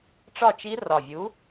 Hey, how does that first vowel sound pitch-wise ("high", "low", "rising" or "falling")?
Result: falling